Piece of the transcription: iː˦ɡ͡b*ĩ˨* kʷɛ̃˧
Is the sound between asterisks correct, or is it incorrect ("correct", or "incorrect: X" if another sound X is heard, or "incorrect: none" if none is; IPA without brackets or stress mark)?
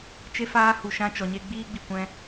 incorrect: i˨